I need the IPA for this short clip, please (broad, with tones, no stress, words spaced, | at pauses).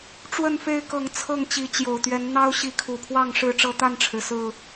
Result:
ʈ͡ʂwə˥˨nfe˦ɪ̯kɤ˨˦ŋ t͡sʰɤ˥˨ŋt͡ɕi˨˦ t͡ɕjo˨˩ʊ̯t̪ɥɛ˨˦n n̪ɑ˦ʊ̯ ɕi˨˦kʰu˨˩pʰwɑ˥˨ŋ ʂɻ̩˥˨ʈ͡ʂɤ˦t̪a˥˨nʈ͡ʂʰɻ̩˩ sɹ̩˨˩